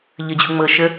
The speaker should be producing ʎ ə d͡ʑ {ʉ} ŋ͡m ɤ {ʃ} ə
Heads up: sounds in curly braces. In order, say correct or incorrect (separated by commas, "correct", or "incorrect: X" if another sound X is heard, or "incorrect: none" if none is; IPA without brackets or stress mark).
incorrect: u, correct